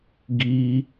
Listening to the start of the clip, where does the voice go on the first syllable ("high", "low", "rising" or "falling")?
high